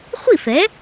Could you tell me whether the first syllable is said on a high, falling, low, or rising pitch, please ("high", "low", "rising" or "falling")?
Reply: falling